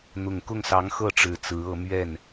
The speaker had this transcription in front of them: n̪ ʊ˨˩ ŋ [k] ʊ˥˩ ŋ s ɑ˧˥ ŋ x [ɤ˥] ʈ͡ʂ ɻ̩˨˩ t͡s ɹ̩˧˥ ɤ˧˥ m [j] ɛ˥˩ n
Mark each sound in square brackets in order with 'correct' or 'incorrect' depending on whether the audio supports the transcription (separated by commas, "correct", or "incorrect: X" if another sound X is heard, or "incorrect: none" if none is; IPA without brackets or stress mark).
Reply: correct, incorrect: ɤ˥˩, incorrect: ɥ